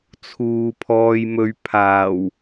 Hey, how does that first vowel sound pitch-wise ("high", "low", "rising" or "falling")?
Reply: low